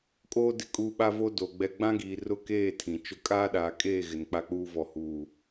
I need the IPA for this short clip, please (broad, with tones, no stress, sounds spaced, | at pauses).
kʼ oː˦ d ɪ˦ kʼ uː˦ ɓ a˦ v o˦ d o˨ ɡ͡b ɛ˦ ɡ͡b ã˦ ɡ iː˨ r ʊ˦˨ k eː˦˨ tʰ ĩ˨ t͡ʃ ʊ˦ kʼ aː˦ ɗ aː˨ kʼ eː˦˨ ɣ ɪ˨ n k͡p a˦ k͡p uː˦ v ɔ˨ h uː˨